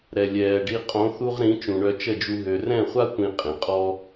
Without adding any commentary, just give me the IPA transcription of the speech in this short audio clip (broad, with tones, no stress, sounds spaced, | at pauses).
ɾ ɛ˨ lʲ ɛː˨ ɖ i˧ qʼ õ˨˦ θ u˧ ʁ ɾ ĩ˨˦ t͡ʃ ũ˨ ɳ œ˧ t͡ʃ ə˦˨ d͡ʒ u˧ ɦ ø˨ r ɛ̃˦˨ χʷ a˦ tʷ ĩ˦ qʼ ĩ˨ qʼ ɔ˦